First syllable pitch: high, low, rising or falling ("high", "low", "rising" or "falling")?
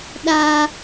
high